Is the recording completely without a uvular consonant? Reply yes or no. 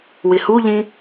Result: yes